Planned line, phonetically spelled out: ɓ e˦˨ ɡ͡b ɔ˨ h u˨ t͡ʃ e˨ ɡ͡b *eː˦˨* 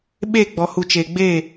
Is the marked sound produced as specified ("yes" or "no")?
yes